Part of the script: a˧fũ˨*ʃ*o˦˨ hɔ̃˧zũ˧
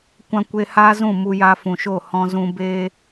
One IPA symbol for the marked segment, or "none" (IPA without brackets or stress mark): ʃ